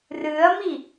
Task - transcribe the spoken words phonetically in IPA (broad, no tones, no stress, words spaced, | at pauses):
rɨɐ̯mi